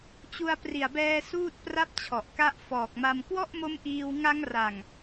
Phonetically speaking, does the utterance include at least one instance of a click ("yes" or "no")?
no